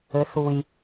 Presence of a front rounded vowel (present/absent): present